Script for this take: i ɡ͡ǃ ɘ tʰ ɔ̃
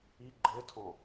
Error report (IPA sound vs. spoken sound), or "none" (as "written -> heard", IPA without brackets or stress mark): none